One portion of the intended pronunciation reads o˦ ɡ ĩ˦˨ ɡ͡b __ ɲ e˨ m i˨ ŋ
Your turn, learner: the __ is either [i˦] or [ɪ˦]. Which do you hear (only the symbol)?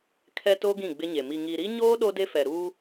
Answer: ɪ˦